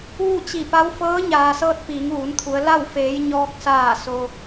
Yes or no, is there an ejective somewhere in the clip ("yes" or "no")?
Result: no